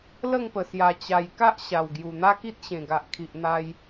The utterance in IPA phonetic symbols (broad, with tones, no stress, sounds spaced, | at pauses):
l ə˥˧ ŋ p ə˨˩ s j a˨˩ t͡ɕ a˨˩ j k a˦ ʔ ɕ a˨˩ w ɡ j u˨˩ n̪ a˦ k i˦ t̚ ɕ ẽ˨˩ ɡ a˨ ʔ kʰ i˨ ʔ n̪ a˧ j